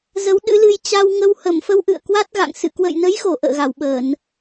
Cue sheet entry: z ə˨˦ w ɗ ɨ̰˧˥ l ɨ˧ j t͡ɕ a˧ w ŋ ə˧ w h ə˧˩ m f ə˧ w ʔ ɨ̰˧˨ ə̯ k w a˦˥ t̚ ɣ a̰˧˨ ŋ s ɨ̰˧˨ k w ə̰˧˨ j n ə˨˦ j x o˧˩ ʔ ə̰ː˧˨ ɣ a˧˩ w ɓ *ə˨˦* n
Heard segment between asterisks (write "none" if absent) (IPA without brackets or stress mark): ə˧˩˨